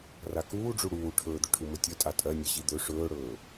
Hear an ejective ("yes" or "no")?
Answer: yes